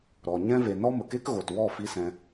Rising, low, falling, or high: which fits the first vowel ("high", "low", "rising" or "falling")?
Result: low